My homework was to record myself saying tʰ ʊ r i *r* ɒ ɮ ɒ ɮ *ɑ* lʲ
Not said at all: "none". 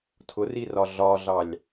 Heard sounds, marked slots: r, ɑ

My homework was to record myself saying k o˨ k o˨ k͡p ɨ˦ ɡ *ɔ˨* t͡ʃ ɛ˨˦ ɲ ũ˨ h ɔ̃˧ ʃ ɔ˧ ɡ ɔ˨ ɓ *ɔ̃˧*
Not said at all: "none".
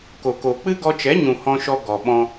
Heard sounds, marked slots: ɔ˧, ɔ̃˧

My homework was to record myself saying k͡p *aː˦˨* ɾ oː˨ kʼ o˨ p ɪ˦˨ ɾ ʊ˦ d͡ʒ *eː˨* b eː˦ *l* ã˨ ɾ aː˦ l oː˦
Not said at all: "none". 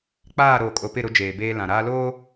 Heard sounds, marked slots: aː˦˨, eː˨, l

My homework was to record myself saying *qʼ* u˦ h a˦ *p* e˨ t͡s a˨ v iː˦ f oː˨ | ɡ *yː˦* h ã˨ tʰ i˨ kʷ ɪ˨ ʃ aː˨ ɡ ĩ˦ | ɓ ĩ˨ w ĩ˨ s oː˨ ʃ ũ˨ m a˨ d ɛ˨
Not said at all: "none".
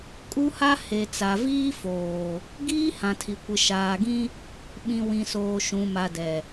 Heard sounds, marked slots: kʼ, h, iː˦

